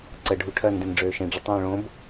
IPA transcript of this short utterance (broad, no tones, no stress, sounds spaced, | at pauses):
ǀ ə ɖʱ u ʈʰ ɜ n d ẽ n ɖ͡ʐ øː ʃ ẽ ɖ͡ʐ ə tˤ õː ɭ õ b